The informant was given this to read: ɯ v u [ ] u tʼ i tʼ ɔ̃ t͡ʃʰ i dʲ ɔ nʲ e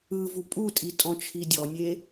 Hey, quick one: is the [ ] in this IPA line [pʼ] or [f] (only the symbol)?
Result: pʼ